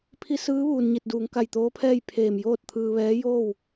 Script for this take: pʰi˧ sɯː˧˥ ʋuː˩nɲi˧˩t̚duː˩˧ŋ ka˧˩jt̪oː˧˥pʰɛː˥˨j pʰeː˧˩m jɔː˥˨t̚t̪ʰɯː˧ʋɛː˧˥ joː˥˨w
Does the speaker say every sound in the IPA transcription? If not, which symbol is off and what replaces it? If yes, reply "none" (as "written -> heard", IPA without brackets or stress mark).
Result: ɔː˥˨ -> oː˥˨